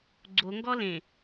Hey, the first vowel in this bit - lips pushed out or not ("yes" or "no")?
yes